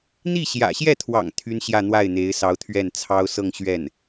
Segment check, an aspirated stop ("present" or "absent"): present